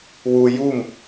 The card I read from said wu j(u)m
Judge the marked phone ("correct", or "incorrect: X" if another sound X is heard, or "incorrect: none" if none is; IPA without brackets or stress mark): correct